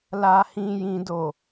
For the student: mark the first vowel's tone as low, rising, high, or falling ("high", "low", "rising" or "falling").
low